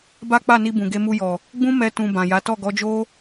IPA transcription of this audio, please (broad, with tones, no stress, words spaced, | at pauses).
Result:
ba˦k͡pa˦˨ni˧ bũ˨ɡe˧mu˧jɔ˨ | ɡ͡bũ˦mɛ˧tũ˨ bã˨ja˨˦ tɔ˦˨ɡɔ˨˦d͡ʒo˦